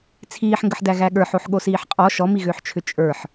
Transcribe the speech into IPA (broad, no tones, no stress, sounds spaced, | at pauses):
t͡sʰ iː ħ ŋ ɡ ə ħ d æ ɣ æ ɠ ə˞ ħ o ħ ɠ o s iː ħ qʼ ɔ ʃ ɔ m i ɣ ʏː ħ t͡ʃʰ ʏ t͡ʃʼ ə˞ ħ